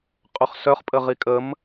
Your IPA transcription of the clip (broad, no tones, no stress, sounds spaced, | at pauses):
qʼ ø χ s œ χ pʼ ə ʁ i kʼ ə m